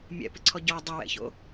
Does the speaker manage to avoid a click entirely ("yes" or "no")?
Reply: no